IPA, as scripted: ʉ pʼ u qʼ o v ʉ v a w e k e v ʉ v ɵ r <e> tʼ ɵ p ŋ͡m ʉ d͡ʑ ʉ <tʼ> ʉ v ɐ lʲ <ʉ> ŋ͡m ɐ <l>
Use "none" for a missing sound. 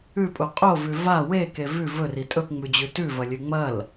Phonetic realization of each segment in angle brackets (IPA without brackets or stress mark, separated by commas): i, t, ʉ, l